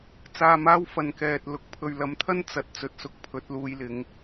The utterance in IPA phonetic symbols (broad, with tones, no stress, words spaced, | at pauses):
t͡saː˧maː˥wfɐ˨n kɛː˨t̚ lʊ˨k̚pʰɵ˨ɥlɐ˨˧mt̪ʰɐ˥n t͡sɐ˨˥t̚ t͡sɵ˨t̚sʊ˧k̚ pʰɵ˨˥t̚luː˧jlɪ˨˧ŋ